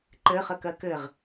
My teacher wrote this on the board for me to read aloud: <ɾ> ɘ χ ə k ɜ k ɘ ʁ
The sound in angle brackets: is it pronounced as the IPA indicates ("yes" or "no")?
no